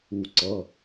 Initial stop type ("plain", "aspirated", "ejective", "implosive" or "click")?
click